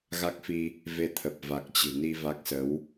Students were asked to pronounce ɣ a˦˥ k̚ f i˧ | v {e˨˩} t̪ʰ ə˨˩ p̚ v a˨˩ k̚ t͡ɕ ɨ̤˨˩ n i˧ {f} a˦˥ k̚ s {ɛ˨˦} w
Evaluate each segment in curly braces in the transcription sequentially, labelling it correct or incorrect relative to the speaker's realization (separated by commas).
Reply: incorrect, incorrect, incorrect